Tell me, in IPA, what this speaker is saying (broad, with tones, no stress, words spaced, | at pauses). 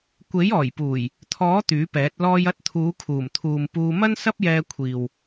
kʷe˨˥j ɔː˨˩jpuː˨˩j | t̪ʰɔː˨˥ t̪yː˨˥pɛː˨˥t̚ lɔː˧jɐ˧t̚t̪ʰuː˨˧ kʰuː˨˩mt̪ʰuː˨mpuː˧ mɐ˥nsɐ˥p̚jɛː˧kʷʰiː˨w